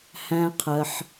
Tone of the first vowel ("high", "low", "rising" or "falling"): high